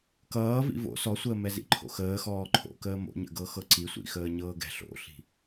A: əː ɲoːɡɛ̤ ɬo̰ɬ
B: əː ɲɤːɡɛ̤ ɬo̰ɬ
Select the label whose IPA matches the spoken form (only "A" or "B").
B